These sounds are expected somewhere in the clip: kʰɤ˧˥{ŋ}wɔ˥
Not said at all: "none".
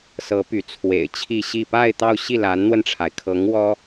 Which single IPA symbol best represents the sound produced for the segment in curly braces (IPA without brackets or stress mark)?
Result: ŋ